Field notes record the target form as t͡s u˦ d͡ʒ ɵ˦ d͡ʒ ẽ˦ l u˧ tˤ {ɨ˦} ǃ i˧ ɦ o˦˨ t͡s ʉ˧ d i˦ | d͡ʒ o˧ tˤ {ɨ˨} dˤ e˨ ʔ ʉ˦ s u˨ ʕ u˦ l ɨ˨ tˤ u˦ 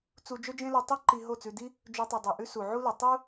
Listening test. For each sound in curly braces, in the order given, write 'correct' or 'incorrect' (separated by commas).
correct, correct